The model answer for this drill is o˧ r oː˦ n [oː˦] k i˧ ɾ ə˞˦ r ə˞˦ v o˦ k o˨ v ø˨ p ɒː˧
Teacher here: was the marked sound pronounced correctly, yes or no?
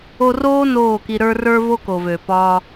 no